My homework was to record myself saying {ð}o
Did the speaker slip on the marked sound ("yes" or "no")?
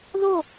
no